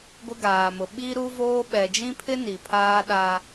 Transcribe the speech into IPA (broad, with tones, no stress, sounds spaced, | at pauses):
ɡʷ ɪ˦ ɡ aː˨ m ʊ˨ ɓ i˦ ɾ u˦ v oː˦ ɓ ɛ˨ d͡ʒ ĩ˦ pʰ ɪ˦ n i˨ pʰ aː˦ ɗ a˦